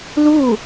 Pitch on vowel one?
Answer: falling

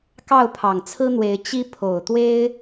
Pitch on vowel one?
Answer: falling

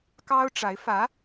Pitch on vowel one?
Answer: high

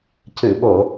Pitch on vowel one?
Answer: low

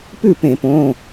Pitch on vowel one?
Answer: falling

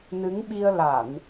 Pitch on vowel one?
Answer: rising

